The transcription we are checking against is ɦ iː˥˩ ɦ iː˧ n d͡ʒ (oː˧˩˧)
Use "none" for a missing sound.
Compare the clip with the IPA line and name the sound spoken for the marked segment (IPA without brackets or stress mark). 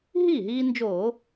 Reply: oː˧˩˧